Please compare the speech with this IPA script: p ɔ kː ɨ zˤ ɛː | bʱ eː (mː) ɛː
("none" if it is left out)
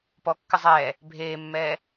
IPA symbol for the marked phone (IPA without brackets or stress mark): mː